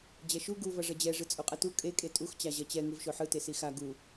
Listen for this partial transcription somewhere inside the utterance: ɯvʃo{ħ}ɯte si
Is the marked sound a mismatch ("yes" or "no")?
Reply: no